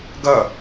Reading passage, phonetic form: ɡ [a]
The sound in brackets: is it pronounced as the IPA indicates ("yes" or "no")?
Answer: no